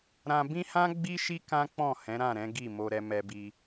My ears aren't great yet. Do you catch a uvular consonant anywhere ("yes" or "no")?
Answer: no